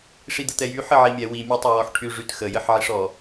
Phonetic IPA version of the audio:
ʂ i d̪ ə t̪ ɛ j y ħ ə ʕ i mʲ ɛ w i mʲ e tˤ e w ɔ ħ ʈʰ y ʐ y t x ə j ə ħ ʕ i ʂ ɔ

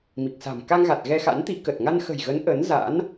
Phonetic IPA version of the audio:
m i˨˩ k̚ s a̤˨˩ m k a˧ ŋ ɣ a˨˩ t̚ ɣ ɛ˧ x a̰˧˥ n t̪ i˨˦ k ə˨˩ t̚ ŋ a˧ n x ə̤˨˩ j ɣ ə˨˦ n ʔ ə˨˦ n z a̰˧˥ n

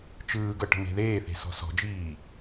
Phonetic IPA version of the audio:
t͡ʃ ɯː ɡ ɤ ʈ ə̤ m e̤ ð eː θ e̤ s ɔ̤ s ɔ̤ d͡ʒ iː

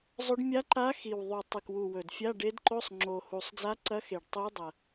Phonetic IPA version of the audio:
zˤ ɵ˧˥ ɖ mʲ a˧˥ ǃ a˧˥ x i˨˩ w ðˤ u˨˩ tˤ ɨ˨˩ k w u˨˩ w ɵ˨˩ d fʲ a˧˥˧ ɖ e˧˥ d ǃ o˧˥˧ sˤ ŋ͡ǁ o˨˩ h u˨˩ sˤ d͡z a˧˥ ǀ ɐ˧˥ x e˨˩ ɖ tˤ i˧˥ u̯ dˤ ɐ˨˩

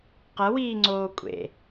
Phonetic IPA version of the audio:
q ɐ w iː ŋ͡ǀ oː kʷʼ ḛ

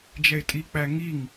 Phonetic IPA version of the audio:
d͡ʒ ɛ ɪ̯ tʼ i k͡p æ ŋ i ŋ

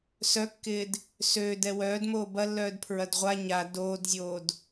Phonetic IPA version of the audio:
s œ kː ɪː d | s øː d ɛ w œː d m oː b ɐ lː œː d pʰ ɹ ɐ d ʁʷ a ɲ a d oː d zʲ oː d

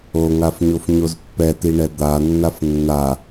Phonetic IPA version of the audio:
o ŋ a f ɲ o f ɲ o z pː ɛ t i ɳ ɛ d̪ a nː a f nː a

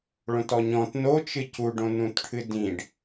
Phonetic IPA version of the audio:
ɭ õ t ɔ ɲ ɔ̃ t n o t͡ʃ ɨ c u ɖ õ n ũ t ʈʰ ɨ d ĩ ɖ

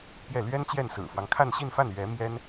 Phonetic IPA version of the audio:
p j ɛ˥˩ l ɥ ɛ˥ n t͡ɕ j ɛ˥˩ n s ɹ̩˨˩ f w ɑ˦ ŋ kʰ a˥˧ n ɕ i˥˧ n f a˥˩ n ɥ ɛ˧˥ m j ɛ˥ n

